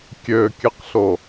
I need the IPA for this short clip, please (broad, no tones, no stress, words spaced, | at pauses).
kʲøkʲɨqɬo